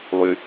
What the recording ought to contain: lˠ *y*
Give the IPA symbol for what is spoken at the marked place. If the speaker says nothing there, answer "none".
y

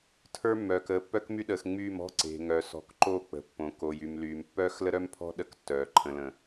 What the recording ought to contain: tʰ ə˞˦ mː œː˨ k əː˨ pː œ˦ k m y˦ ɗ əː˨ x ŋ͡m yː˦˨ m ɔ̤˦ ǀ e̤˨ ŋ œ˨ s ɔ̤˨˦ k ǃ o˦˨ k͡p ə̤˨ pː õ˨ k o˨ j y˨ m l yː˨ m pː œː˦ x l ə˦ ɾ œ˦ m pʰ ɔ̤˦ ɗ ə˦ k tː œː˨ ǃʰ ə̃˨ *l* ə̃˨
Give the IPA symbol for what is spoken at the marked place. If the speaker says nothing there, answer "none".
l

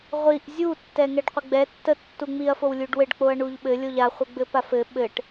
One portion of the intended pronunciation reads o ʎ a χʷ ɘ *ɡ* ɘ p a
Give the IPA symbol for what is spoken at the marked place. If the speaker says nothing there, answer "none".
ɡ͡b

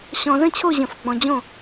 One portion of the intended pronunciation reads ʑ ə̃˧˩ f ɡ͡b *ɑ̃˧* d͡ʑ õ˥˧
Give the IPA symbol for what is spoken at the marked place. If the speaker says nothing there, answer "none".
ɔ̃˧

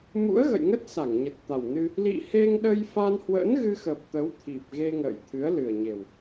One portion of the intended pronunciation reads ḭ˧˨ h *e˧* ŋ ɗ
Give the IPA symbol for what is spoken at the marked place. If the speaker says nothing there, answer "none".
e˧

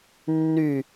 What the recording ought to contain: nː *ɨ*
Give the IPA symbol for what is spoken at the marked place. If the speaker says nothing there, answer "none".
y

